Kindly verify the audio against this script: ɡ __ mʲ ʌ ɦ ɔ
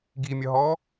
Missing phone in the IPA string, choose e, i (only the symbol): i